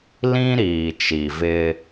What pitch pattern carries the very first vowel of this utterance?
high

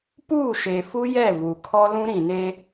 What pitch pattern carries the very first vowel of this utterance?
falling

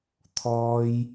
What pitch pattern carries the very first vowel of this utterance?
high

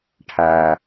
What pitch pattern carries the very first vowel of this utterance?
low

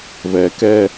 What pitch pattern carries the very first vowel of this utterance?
low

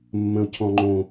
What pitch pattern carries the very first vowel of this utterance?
low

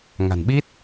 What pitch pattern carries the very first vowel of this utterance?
low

